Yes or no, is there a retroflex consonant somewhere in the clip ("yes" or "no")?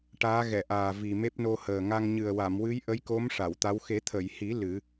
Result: yes